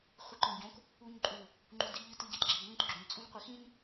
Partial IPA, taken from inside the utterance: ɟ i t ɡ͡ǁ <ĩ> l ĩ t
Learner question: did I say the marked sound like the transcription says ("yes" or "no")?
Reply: no